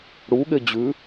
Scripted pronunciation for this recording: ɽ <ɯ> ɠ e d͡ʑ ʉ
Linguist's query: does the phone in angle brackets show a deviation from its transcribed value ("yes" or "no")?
yes